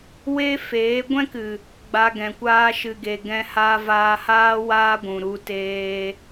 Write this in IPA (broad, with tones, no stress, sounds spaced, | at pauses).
w e˦ f eː˨˦ ɡʷ ɛ̃˦ k ɨ˨ | ɡ͡b a˧ ɡ ɛ̃˨ kʷ aː˦ ʃ ɨ˨ ɡ e˨ ɡ ɛ̃˧ h a˧ v aː˧ h aː˦ w aː˦ ɡʷ ũ˨ ɾ u˧ t eː˧